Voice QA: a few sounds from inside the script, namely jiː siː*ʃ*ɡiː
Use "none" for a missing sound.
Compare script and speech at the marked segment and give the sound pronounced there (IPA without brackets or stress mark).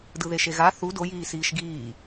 ʃ